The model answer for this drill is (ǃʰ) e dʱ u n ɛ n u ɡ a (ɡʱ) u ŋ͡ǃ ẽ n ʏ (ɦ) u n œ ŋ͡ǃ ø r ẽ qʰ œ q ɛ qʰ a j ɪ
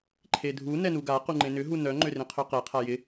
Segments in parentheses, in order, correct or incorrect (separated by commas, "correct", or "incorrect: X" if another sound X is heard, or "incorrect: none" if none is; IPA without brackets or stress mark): correct, incorrect: q, correct